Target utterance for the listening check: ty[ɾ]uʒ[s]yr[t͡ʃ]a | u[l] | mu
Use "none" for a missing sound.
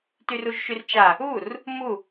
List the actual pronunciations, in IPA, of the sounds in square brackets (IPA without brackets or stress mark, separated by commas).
r, ʃ, t͡ʃ, r